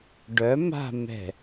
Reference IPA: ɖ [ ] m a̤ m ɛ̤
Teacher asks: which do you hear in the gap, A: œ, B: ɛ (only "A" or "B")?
A